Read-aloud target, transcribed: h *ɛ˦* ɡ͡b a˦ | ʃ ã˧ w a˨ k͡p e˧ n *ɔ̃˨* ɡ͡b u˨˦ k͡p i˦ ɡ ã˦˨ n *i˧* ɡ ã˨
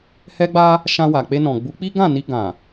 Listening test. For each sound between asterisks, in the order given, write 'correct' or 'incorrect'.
correct, correct, correct

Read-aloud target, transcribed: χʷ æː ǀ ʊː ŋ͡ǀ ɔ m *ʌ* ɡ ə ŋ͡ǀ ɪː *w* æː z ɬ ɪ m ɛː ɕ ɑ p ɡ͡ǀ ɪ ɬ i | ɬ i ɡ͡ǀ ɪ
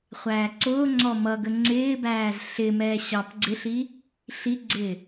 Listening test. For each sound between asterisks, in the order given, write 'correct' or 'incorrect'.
correct, incorrect

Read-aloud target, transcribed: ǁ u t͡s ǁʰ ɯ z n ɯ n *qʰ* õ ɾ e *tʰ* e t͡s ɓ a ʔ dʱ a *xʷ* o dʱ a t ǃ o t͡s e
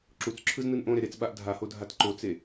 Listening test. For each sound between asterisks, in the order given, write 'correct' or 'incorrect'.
incorrect, incorrect, incorrect

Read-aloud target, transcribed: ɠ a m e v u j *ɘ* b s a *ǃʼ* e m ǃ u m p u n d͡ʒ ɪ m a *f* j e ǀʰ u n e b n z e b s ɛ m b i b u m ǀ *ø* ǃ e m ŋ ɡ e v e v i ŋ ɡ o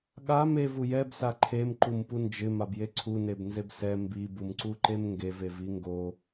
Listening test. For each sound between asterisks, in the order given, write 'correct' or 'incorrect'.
incorrect, incorrect, incorrect, incorrect

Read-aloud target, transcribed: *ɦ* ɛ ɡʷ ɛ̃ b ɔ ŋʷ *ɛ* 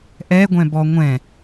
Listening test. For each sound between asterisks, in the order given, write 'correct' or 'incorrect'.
incorrect, incorrect

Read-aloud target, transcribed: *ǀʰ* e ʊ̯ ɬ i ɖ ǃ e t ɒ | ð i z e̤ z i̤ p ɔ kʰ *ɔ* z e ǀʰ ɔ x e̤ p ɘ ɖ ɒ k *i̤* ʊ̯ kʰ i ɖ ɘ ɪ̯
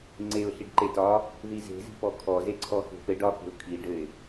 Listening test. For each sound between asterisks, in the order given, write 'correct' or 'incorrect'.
incorrect, correct, incorrect

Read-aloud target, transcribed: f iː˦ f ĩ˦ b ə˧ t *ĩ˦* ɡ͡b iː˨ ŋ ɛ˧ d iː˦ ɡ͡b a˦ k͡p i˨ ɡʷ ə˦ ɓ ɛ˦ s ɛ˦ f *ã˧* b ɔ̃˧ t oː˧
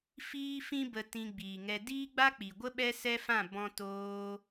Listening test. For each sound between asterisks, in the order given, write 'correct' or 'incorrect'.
incorrect, incorrect

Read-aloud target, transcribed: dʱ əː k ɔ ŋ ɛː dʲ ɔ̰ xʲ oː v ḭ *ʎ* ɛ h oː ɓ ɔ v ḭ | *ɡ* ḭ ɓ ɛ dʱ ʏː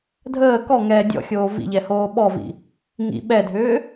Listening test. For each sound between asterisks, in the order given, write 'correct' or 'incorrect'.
correct, incorrect

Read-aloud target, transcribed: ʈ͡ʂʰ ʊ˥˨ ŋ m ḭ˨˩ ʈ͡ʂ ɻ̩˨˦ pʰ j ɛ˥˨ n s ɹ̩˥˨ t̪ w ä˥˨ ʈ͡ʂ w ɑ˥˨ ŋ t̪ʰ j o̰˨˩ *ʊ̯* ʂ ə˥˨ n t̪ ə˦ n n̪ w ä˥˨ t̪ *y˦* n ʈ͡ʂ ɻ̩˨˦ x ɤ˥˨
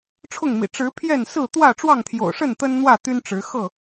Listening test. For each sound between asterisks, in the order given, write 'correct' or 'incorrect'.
correct, correct

